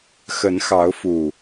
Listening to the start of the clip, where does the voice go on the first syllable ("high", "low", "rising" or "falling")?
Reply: rising